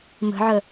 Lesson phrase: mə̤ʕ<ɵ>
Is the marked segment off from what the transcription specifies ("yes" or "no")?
yes